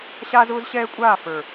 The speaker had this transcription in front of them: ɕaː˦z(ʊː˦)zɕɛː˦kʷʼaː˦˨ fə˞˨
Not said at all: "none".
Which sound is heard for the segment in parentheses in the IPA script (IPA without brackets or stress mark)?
ʊː˦